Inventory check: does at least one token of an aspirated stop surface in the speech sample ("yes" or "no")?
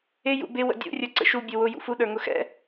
no